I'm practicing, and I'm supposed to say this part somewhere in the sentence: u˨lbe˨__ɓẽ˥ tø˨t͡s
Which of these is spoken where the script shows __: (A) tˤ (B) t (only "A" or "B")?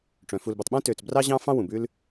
A